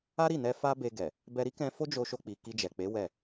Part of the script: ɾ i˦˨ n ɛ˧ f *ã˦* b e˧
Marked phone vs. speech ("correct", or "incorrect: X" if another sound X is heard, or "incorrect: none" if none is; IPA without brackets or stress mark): incorrect: a˦